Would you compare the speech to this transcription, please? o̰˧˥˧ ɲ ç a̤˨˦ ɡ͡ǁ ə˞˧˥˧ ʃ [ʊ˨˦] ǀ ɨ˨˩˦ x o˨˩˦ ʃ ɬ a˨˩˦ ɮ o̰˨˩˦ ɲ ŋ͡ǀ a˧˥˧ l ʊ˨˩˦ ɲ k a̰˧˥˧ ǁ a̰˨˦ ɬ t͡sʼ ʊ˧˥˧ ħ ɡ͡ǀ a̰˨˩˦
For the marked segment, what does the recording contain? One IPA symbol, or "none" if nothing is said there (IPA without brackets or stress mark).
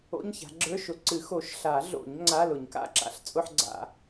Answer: ʊ˨˦